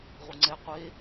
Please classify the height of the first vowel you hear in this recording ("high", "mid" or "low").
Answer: high